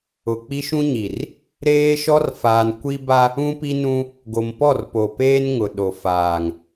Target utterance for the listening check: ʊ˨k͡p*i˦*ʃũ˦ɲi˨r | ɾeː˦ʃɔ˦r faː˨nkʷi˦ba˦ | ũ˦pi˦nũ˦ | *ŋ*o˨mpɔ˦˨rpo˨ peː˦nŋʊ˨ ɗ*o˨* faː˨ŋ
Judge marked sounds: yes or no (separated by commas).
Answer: yes, no, yes